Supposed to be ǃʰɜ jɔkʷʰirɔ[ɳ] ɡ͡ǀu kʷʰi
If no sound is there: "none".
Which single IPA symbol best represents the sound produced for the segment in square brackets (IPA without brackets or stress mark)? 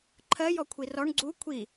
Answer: ɳ